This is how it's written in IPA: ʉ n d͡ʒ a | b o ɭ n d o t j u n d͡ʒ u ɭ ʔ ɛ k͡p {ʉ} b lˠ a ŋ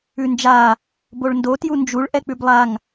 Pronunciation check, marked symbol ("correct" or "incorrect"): correct